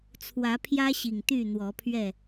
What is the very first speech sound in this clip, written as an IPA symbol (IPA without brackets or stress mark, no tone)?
t͡sʰ